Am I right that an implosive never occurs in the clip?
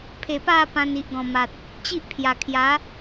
yes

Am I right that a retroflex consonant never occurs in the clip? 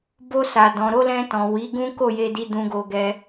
yes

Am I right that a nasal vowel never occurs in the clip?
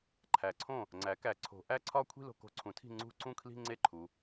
no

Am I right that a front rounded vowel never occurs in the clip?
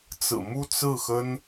yes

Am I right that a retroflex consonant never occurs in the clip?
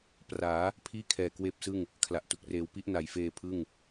yes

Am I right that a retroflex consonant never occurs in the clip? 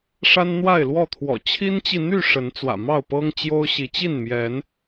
no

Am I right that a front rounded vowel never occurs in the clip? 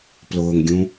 yes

